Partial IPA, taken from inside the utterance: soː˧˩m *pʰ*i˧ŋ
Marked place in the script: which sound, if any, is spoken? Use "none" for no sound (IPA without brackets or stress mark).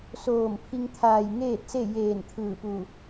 pʰ